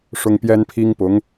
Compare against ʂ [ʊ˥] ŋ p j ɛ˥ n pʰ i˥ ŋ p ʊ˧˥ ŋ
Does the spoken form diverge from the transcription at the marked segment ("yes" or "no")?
no